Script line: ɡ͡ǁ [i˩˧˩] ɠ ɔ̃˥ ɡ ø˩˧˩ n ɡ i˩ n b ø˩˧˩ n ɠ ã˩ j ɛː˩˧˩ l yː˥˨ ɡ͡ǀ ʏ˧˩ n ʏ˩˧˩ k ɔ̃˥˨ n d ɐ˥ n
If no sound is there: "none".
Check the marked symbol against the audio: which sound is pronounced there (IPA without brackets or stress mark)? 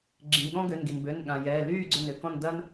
ĩ˩˧˩